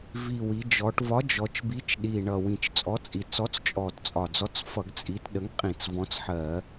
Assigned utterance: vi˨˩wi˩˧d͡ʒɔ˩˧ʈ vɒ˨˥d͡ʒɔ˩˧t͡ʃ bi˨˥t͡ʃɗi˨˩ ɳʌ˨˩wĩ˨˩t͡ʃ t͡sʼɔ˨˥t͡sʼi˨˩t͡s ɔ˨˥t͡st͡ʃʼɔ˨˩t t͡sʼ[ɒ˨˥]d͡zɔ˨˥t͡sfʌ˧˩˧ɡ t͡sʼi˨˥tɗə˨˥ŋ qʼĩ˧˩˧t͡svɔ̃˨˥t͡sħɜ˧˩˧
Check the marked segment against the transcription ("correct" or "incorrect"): incorrect